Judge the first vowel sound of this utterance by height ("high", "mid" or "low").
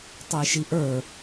mid